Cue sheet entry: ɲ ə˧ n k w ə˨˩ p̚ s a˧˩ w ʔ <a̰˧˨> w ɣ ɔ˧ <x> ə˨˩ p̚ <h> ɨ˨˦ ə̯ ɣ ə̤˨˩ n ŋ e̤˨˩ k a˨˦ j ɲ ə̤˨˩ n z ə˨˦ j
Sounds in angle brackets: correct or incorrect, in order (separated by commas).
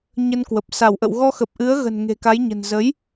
incorrect, correct, incorrect